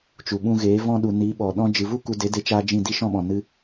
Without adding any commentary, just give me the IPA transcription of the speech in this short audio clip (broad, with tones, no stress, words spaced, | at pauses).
t͡ʃu˨ɓũ˧ɣeː˨˦ vɔ̃˦ɗu˨ ni˨˦ɓɔ˨ ɗɔ̃˦ d͡ʒɨ˨vu˦ ku˧ de˨˦de˧t͡ʃaː˧ d͡ʒĩ˦˨di˦ ʃɔ̃˦ɓɔ̃˨ nɨ˧